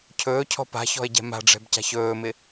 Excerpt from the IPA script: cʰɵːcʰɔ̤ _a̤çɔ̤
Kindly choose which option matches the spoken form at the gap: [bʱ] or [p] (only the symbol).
p